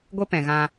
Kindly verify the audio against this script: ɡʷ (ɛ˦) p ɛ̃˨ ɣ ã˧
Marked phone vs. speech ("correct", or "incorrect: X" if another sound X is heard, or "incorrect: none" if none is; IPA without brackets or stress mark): incorrect: e˦